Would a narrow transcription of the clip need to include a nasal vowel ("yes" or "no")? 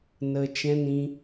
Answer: yes